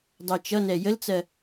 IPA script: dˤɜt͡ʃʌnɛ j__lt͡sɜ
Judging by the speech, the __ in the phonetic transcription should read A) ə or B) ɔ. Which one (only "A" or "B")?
A